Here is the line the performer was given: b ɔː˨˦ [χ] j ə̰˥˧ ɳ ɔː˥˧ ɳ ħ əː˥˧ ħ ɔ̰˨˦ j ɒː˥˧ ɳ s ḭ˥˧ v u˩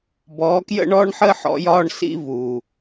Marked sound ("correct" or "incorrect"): incorrect